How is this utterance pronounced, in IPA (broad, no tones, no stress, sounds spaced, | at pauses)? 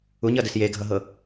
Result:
u ɲ ʌ d ɘ s j e ɡʱ ʌ ɦ ɤ